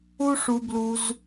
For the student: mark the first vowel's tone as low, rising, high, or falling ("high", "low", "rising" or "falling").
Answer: high